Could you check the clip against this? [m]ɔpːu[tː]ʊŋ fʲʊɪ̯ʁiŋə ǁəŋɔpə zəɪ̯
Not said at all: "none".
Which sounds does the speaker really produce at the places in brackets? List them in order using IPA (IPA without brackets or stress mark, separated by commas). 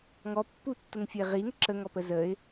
ŋ, tː